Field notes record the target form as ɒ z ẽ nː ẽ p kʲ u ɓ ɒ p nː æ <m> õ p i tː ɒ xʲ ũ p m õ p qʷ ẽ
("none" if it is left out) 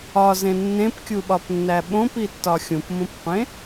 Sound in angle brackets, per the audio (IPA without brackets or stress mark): ɓ